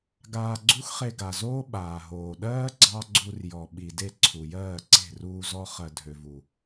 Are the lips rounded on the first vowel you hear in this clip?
no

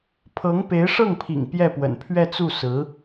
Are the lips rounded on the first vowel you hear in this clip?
no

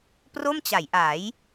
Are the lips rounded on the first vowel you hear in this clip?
yes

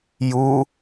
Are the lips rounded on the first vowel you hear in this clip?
yes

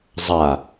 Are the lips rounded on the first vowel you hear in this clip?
no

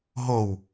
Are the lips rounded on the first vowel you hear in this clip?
yes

